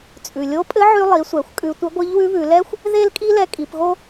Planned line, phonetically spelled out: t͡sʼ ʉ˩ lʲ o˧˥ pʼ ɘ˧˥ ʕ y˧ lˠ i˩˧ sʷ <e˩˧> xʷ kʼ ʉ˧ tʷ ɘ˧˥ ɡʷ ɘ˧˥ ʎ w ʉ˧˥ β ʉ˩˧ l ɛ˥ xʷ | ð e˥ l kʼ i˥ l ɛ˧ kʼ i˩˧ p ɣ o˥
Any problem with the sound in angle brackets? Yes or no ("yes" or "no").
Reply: yes